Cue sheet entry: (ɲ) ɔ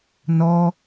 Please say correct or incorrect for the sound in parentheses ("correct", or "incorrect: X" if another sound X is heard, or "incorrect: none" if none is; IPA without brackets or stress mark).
incorrect: n